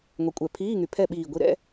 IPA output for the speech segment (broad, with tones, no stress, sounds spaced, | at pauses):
ŋʷ ɛ˨˦ kʷʼ ɛ˧˩˧ pʰ iː˧˥˧ ŋ y˨˩ pʰ ɛ˥˨ ɓ iː˨˩ ɡʷ i˨˦ ɾ ɛ̰˧˥˧